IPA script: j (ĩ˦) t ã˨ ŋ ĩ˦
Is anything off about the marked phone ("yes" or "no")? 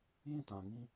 yes